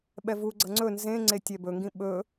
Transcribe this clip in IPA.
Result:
ɓ ɛ v u ɡ͡ǀ ʌ ŋ͡ǀ ɵ n z ẽ ŋ͡ǀ e tʲ ɛ b ɵ ŋ ɡ ĩ ɓ ɵ

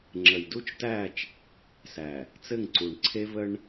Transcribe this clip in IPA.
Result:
ŋ͡ǁ ə˨ j d u˦ t͡ʃ t æ˦˨ t͡ʃ | s æ˨ | t͡s ɘ˦˨ ŋ ǀ u˨ ɳ ǀʰ e˦ v ə˦ ɳ

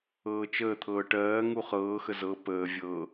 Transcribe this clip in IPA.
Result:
ɤː t͡ʃ əː t̪ʰ ɤː ʈ ɜː ŋ u χ ɤː x ə z ɤ p əː vʲ ɤ

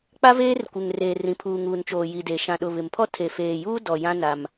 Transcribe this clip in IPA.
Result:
k͡p a˦ v eː˦ r kʷ ɪ˨ ŋ r eː˨ r ĩ˨ pʰ uː˨ ŋ uː˨ n t͡ʃ oː˨ j i˨ d e˨ ʃ ã˨ ɗ ʊ˨ β ɪ˨ m pʰ ɔ˦ tʰ e˨ f eː˨ j uː˦ d ɔ˨ j ã˦ n a˦ m

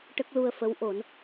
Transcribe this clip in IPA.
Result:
ʈ ə˦˥ k̚ l u˧ ə̯ f ə˧˥ w ʔ o˨˩˦ n

